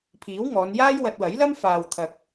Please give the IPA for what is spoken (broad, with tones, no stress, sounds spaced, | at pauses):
pʰ iː˨˥ w ŋ ɔː˨˧ n j aː˥ j w ɐ˧ t̚ w ɐ˨˥ j l ɐ˥ m f aː˨ w t̪ʰ ɐ˨ k̚